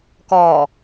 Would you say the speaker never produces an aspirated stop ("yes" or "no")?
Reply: yes